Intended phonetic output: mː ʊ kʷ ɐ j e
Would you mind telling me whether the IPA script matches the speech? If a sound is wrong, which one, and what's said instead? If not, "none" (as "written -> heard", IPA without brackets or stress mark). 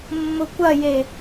none